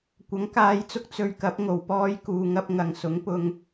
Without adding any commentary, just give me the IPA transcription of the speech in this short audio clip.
kʷ ɐ˨˥ ŋ k aː˨˧ j t͡s ʊ˧ k̚ t͡s ɵ˧ ɥ k ɐ˨˥ p̚ ŋ o˨˩ w p ɔː˧ j k uː˨ ŋ ɐ˧ p̚ ŋ ɐ˨ ŋ s ʊ˨˥ ŋ p ʊ˧ ŋ

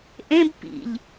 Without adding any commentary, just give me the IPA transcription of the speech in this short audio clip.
ʔ ẽ b p ḭ ʎ

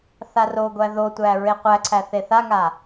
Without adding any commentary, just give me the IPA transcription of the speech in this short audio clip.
θ a r o ɡʷ æ ð o tʷ æ ɹ e qʷ æ ǀʰ æ θ e θ a ŋ a

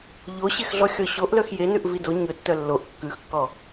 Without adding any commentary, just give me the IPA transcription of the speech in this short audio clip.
ʎ o ɕ e x ɮ ɔ xʲ ɔ ɕ o ʔ l œ x j e n ʉ ʔ v i d o ɲ ɵ tː œ lː o ʔ kː ʉ x kː ɔ

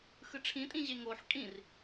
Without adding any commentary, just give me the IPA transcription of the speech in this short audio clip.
x ɯ ʈ͡ʂʰ ĩ tʼ ĩ ʑ e ŋ o ħ kʼ ĩ r

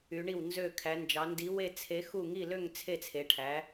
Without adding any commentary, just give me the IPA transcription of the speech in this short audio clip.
y˩˧ ɳ i˧˩ w n z ø˧˩ kʰ æ˩˧ n d͡ʒ ɑ˩˧ n d i˩˧ w e˧˩ t͡sʰ e˩˧ x u˧˩ ŋ i˧˩ l ø˧˩ ŋ t͡sʰ e˧˩ t͡sʰ e˩˧ ʈʰ æ˩˧

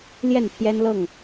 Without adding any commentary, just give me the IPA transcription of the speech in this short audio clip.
l j ɛ˥˨ n pʰ j ɛ˦ n l ɤ˥˨ ŋ

